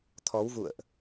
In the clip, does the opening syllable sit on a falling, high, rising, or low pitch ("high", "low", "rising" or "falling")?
rising